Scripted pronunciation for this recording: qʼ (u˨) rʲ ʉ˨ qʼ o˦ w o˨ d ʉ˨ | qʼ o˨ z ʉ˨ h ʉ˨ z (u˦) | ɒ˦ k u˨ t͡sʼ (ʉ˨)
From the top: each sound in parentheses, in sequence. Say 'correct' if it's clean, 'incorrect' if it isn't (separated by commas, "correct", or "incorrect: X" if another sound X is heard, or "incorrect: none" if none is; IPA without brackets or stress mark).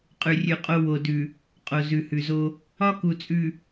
incorrect: ʉ˨, incorrect: o˦, correct